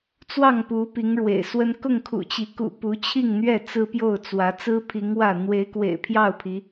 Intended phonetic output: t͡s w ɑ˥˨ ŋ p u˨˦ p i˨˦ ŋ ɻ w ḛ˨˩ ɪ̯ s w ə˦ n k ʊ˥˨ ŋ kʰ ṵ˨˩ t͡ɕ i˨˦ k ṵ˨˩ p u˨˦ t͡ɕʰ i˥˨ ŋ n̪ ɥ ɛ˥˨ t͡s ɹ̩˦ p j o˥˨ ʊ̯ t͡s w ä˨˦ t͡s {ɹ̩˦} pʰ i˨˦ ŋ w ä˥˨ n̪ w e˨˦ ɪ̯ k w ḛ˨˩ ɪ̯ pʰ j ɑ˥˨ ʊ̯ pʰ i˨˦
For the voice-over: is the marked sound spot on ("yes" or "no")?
yes